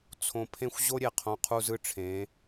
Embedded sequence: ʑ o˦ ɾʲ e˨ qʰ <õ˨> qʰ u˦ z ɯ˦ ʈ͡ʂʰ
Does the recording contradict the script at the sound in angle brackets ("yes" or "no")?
no